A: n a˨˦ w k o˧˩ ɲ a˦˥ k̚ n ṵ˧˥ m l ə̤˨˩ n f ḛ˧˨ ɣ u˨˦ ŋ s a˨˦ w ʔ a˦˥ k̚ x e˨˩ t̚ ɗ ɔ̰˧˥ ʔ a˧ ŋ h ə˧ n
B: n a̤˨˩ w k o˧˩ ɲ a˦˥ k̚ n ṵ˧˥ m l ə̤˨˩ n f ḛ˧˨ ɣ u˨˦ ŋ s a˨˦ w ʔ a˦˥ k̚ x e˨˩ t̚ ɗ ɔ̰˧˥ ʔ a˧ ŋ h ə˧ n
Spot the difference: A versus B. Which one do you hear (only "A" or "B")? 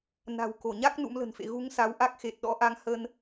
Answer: B